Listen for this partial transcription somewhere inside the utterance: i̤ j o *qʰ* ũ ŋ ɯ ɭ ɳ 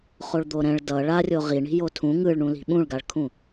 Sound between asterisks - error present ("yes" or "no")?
yes